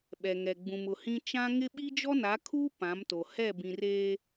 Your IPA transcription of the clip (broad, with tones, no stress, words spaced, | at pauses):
ɓɛ˨ŋɛ˨ ɡ͡bũ˨mʊ˨hĩ˦ t͡ʃã˦ŋɪ˦ ɓi˦d͡ʒɔ˦na˨˦kʰuː˦ pã˨˦mto˨ hɛ˦˨ bĩ˨reː˦